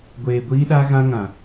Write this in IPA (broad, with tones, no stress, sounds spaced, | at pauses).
ɡʷ eː˨ ɡʷ iː˦ ɗ a˦ ɣ ã˦ ŋ ã˨